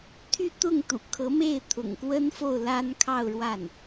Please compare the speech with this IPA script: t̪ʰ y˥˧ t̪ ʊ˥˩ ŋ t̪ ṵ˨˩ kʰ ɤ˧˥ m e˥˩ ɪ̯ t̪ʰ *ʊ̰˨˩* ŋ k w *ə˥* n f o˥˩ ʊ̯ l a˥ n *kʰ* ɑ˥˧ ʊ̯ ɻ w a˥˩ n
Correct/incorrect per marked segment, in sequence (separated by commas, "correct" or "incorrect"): correct, correct, correct